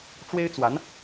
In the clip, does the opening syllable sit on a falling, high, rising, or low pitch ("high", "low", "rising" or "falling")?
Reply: high